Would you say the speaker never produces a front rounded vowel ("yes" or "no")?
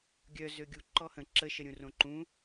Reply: no